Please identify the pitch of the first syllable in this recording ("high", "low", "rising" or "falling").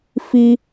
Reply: high